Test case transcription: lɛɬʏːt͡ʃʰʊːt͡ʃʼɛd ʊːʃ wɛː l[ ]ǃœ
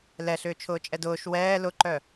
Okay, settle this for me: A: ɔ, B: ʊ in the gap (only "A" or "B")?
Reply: B